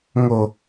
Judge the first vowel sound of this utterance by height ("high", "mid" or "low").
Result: mid